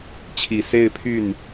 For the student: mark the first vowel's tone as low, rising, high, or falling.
low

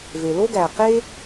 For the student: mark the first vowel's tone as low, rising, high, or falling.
low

